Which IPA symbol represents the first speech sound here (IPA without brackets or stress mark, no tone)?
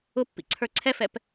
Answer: ʊ